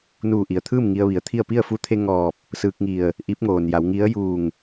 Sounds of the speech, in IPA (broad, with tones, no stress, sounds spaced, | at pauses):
n uː˧˩ ʔ i˩ ə̯ t̪ʰ ɯː˥˨ m ŋ i˧ ə̯ ʋ i˩˧ ə̯ t̪ʰ i˥˨ ə̯ p i˥˨ ə̯ f u˧˥ t̪ʰ e˧ ŋ ɔː˧˩ p̚ | s ɯː˧ k̚ ŋ i˧˩ ə̯ | ʔ i˧˥ p̚ ŋ oː˩ n j a˩˧ w ŋ i˧˥ ə̯ j uː˧˩ ŋ